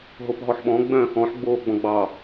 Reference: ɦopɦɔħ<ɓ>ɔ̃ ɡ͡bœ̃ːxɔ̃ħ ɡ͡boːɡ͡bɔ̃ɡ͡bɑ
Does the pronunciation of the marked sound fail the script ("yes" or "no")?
no